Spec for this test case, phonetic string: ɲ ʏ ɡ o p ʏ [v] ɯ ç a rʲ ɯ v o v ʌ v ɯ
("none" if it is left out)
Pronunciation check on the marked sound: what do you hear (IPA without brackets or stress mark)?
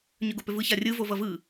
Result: v